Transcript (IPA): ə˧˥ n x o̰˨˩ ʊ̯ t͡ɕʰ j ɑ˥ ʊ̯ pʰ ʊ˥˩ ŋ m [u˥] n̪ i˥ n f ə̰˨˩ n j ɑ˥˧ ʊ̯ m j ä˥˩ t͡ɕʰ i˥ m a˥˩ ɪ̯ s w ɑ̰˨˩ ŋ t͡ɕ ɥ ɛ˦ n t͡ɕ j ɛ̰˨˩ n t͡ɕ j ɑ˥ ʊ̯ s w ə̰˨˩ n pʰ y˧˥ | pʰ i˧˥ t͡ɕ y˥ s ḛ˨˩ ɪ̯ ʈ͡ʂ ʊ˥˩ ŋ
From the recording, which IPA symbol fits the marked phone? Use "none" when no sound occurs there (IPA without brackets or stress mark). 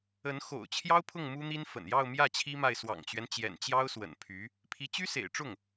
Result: u˥